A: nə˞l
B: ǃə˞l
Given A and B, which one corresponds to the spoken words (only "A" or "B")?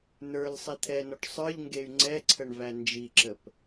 A